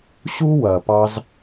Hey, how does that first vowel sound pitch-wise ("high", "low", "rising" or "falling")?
high